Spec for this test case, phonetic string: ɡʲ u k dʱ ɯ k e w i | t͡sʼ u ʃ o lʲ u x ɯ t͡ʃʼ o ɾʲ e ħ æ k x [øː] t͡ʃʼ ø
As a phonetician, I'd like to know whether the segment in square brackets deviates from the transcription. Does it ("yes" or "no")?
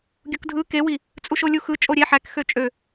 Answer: yes